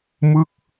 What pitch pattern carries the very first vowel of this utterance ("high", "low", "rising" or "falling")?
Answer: falling